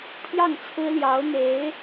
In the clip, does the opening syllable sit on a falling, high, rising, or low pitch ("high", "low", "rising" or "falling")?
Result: falling